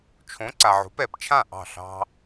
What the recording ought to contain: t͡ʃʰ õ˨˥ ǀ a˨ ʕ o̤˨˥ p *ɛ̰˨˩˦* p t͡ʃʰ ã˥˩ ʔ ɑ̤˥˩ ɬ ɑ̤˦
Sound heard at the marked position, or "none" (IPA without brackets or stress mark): ɛ˨˩˦